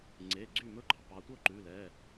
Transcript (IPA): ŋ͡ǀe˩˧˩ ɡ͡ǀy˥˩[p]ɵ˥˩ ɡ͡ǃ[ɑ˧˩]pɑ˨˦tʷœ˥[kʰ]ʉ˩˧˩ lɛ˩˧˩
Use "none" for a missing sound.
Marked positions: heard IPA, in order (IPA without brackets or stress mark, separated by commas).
m, ɑ˩, ǃ